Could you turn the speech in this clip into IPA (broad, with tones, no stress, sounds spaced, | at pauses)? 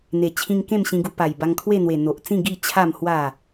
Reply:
n̪ e˨˩ t͡ɕʰ ĩ˧ ŋ k ẽ˥˧ m ɕ ĩ˧ ɡ u˧ p a˨˩ j b a˧ ŋ kʰ w e˥˧ n̪ w e˨˩ n̪ o˨ ʔ t͡s ĩ˥˧ ɡ i˥˧ t͡ɕʰ a˥˧ m h w a˥˧